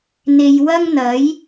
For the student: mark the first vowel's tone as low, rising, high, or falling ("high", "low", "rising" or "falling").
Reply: low